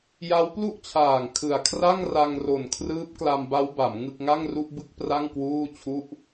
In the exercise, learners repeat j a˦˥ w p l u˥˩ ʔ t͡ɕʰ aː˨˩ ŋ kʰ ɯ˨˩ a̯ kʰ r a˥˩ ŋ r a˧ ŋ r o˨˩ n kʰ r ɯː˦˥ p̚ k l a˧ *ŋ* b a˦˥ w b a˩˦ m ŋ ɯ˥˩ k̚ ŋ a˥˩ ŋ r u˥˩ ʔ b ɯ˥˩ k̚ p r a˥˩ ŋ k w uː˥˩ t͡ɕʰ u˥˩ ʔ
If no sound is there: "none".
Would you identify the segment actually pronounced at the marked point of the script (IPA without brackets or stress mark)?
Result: m